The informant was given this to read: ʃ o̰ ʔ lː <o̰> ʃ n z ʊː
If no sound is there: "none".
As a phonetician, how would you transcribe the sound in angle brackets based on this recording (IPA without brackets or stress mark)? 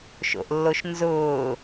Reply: o